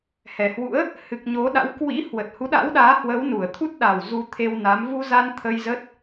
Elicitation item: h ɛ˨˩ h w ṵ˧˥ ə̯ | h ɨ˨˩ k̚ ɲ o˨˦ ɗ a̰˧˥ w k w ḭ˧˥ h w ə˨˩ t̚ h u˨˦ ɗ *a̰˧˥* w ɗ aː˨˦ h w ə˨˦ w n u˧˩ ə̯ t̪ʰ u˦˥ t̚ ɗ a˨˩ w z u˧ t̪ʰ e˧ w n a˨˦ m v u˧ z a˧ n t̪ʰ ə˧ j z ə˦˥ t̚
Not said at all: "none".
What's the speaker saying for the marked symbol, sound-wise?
a̰˧˥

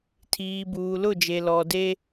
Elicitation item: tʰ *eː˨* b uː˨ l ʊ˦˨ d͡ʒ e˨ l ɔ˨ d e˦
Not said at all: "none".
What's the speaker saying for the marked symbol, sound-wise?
iː˨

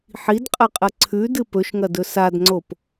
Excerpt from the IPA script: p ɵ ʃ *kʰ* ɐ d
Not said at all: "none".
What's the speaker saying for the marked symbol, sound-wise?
ŋ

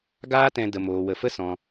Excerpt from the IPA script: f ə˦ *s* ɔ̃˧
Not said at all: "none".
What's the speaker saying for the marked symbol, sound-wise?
s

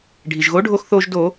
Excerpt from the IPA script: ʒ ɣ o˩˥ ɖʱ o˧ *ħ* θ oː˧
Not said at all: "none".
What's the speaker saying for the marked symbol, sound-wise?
x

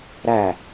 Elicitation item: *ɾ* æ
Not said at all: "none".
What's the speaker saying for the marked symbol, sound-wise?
ɾ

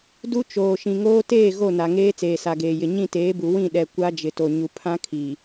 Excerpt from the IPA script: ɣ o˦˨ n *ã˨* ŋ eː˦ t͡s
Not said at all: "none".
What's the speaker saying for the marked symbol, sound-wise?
a˨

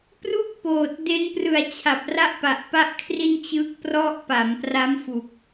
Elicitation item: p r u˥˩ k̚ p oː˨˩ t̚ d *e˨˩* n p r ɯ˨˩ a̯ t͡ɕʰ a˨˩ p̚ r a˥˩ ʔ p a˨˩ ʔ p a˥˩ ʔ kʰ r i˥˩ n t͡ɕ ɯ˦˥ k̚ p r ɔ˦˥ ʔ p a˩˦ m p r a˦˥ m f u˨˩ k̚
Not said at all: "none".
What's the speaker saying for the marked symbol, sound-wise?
e˦˥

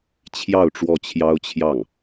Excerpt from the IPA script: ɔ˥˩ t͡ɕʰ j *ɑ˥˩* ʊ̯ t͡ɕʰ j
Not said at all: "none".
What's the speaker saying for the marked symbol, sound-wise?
ɑ˥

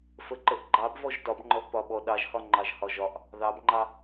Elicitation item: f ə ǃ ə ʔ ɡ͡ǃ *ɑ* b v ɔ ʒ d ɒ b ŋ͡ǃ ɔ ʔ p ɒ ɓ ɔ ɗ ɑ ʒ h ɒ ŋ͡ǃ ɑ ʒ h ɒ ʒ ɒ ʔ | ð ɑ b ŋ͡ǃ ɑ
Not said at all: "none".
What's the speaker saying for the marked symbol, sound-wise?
ɑ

